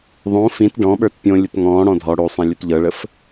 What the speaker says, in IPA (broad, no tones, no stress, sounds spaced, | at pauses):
ðˤ õ f ĩ t ɖ ɔ̃ ɓ ə˞ t pʲ õ lʲ ə t ŋ ɔ̃ː ɽ ɔ̃ dʱ ɔ ɽ o sˤ ẽ lʲ ʊ t ʎ ɤ ɭ ə f